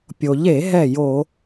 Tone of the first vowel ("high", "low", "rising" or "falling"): low